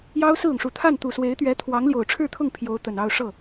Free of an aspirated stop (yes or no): no